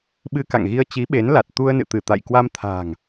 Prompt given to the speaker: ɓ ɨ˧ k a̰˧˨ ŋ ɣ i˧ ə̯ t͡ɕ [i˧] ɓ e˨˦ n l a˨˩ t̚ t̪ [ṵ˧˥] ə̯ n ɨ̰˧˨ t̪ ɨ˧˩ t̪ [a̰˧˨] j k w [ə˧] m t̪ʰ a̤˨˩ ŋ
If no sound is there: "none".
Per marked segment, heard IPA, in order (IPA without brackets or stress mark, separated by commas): i˨˦, u˧, a̰˧˨, a˧